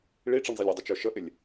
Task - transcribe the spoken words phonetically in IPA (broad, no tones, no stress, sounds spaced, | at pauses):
ɭ i ʈ͡ʂ i ɳ zˤ i lʲ ɪ dˤ ʊ t͡ʃ ə˞ ʃ ə ʔ ɪ lʲ